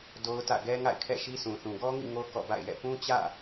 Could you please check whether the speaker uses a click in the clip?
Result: no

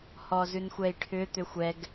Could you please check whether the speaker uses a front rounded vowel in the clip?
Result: yes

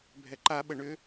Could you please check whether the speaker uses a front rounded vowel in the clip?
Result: yes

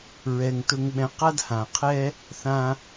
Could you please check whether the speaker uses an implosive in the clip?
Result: yes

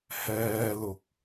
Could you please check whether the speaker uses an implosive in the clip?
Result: no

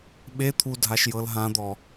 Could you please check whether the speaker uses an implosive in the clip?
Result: yes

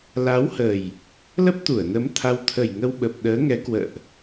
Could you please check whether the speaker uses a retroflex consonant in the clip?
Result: no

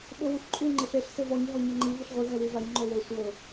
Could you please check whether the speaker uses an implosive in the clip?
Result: yes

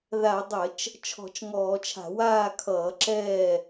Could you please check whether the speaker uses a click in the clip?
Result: yes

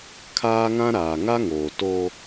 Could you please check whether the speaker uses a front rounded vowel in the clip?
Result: no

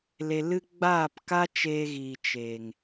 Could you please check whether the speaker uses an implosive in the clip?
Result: no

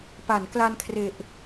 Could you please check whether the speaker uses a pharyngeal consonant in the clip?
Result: no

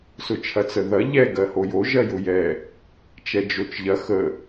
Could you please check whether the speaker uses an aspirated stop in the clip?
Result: yes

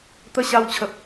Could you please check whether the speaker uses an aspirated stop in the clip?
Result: yes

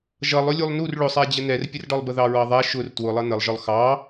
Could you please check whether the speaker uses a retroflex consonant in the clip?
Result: yes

